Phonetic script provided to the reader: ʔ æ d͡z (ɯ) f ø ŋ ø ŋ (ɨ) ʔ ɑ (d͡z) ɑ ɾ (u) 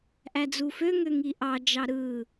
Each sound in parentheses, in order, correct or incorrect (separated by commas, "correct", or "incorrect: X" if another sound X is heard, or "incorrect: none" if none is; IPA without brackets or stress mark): incorrect: u, incorrect: i, incorrect: d͡ʒ, incorrect: ɯ